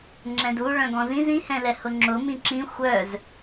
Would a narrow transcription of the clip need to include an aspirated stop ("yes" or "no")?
no